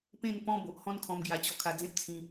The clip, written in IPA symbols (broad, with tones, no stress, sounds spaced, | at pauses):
p ẽ˥˧ n p ɔ̃˦ b o˨ ʔ h ɔ̃˥˧ n kʰ ɔ̃˧ m ɡ j a˧ t͡ɕ ɔ˧ kʰ a˧ d͡z ẽ˦ p̚ t͡sʰ ĩ˧